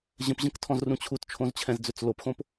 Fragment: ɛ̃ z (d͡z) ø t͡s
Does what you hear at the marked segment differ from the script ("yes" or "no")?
no